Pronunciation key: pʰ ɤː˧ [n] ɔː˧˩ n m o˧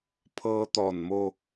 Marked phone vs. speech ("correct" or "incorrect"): incorrect